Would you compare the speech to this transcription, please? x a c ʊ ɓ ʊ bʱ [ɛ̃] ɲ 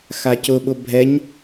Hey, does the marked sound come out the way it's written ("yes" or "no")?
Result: no